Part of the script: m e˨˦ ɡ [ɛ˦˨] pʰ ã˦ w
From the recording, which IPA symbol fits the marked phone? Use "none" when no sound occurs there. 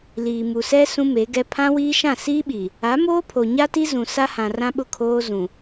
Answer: ɛ˦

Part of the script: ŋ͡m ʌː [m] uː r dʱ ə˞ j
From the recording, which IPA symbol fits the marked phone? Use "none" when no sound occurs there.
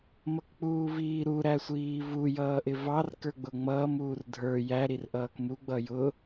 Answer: m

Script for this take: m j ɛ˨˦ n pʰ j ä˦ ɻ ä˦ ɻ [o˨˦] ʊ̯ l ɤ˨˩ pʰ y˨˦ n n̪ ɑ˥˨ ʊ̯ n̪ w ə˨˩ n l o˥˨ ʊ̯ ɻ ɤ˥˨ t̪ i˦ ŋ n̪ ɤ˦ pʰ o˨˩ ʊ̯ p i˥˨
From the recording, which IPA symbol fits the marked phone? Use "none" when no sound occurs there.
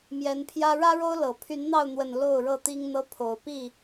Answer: o˦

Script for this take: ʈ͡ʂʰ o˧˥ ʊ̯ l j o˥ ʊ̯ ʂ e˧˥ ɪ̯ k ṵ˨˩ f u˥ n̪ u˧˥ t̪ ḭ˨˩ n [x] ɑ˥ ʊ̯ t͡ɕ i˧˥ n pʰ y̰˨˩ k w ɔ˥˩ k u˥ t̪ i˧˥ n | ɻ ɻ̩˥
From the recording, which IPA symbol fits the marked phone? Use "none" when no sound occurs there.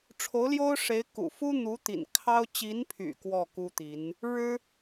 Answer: kʰ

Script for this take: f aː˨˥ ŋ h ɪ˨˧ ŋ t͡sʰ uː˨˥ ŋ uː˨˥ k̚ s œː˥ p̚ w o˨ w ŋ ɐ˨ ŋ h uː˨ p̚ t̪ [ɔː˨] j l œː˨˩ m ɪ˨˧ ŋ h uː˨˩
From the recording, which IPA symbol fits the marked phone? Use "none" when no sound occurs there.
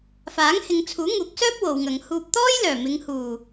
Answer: ɔː˥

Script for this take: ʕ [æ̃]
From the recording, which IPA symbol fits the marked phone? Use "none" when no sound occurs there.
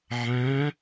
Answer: æ̃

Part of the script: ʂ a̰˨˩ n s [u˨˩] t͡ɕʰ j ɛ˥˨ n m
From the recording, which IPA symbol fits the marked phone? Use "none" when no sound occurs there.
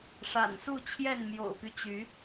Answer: u˥˨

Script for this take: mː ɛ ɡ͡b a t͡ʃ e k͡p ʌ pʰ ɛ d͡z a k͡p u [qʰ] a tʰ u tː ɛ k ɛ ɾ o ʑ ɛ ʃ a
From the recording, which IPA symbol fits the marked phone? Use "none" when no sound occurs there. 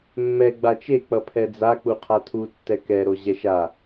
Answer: qʰ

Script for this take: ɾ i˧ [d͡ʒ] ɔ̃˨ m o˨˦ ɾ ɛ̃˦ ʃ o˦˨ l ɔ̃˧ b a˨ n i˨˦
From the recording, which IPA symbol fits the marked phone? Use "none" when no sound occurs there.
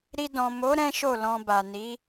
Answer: d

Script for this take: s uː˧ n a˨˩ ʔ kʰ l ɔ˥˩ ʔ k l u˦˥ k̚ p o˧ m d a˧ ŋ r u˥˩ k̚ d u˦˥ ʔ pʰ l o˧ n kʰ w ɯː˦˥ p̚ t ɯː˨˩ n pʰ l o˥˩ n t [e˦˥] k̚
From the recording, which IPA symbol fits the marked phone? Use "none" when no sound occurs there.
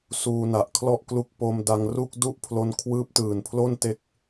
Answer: e˦˥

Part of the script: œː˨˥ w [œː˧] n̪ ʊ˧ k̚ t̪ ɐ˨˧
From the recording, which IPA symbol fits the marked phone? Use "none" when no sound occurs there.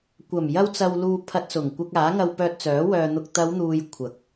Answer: œː˧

